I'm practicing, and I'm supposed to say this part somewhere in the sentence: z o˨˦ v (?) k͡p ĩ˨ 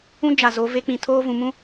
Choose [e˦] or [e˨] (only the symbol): e˦